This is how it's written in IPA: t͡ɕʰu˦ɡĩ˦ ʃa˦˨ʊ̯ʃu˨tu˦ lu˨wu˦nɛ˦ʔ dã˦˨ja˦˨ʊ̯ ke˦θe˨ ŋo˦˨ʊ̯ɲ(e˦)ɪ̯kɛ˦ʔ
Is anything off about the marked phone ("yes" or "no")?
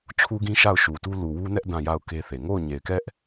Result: yes